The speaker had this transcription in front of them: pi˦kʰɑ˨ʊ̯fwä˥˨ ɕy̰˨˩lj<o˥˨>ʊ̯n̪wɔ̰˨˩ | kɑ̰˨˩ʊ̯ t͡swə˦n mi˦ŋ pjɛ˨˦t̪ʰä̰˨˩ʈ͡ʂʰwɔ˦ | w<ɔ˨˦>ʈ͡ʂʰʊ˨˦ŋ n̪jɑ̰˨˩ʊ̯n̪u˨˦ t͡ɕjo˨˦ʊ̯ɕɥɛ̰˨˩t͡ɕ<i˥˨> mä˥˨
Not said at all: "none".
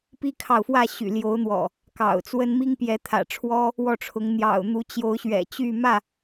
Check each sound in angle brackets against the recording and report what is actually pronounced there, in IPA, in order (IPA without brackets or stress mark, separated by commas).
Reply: o˨˦, ɔ˥˨, y˥˨